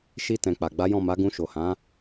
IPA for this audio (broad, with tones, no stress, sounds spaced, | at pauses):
ʃ i˧ t ɛ̃˨ k͡p a˨ ɡ͡b a˨˦ j ɔ̃˦˨ m a˨˦ ɡ ũ˧ ʃ o˨ h ã˨˦